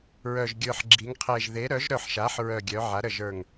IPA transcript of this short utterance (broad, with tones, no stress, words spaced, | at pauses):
ɹœ˨˩ʒɡʲə˞˨˩ħɡ͡ǁi˩˧ŋqʰe˨˩ʒ ðe˩˧ ɾœ˩˧ʒɾœ˨˩ħʃa˩˧ħ ɹœ˨˩ɡʲœ˩˧ ʕa˩˧ɾə˨˩ʒə˞˨˩ŋ